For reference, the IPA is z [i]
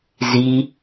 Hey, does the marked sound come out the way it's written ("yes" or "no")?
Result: yes